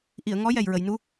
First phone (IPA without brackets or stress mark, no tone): ʔ